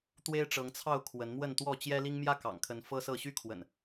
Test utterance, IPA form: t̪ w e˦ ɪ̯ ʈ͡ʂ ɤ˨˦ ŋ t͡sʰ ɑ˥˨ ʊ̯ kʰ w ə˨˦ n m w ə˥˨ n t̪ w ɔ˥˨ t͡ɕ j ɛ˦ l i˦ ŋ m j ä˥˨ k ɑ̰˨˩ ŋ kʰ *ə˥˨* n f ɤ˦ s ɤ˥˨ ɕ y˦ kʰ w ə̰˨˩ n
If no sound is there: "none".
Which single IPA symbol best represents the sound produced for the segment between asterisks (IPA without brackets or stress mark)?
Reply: ə˨˦